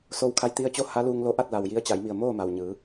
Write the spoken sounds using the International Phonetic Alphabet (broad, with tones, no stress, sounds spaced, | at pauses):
s o˧ w kʰ a˧˥ j t̪ i˧ ə̯ t͡ɕ o˥˨ h a˧˥ l uː˧ ŋ l o˧˥ ʔ a˥˨ t̚ l a˩ w j i˧˥ ə̯ t͡ɕ a˩˧ j m i˧˩ ə̯ m oː˥˨ m a˩ w ɲ ɯː˩˧